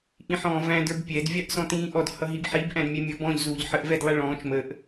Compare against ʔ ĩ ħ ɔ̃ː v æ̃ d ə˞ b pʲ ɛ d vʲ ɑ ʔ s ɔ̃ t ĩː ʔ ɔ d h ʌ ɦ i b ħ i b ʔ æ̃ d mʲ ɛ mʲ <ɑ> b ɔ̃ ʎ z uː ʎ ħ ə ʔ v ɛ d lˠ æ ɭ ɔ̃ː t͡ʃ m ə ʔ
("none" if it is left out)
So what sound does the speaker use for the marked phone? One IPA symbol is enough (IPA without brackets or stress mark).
ʌ